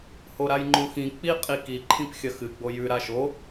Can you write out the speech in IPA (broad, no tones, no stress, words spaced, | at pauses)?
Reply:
hoɾajŋ͡ǃõxĩ k͡pi qʼiki ǃʰĩpxʲɐxɨ ɡ͡bojʉ ɾaʃo